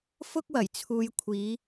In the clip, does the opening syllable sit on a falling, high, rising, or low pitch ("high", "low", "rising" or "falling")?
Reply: high